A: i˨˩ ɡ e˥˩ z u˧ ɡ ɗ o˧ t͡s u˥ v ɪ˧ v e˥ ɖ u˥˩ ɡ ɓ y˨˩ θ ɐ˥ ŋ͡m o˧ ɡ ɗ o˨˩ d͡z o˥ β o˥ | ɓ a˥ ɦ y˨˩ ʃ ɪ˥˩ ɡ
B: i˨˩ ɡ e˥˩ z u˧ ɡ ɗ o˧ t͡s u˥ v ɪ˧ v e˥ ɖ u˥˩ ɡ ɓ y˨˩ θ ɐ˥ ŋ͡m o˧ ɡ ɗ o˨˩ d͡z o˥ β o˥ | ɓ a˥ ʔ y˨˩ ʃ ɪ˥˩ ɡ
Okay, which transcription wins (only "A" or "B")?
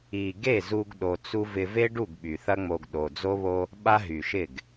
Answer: A